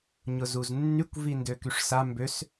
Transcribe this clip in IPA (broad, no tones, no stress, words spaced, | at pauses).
ɲʊzuznːykʷ vindøkyʂsa mbøs